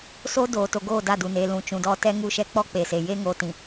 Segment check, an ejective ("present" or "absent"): absent